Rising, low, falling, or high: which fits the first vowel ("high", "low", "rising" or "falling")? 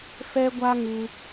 high